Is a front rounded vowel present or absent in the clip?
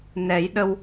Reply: absent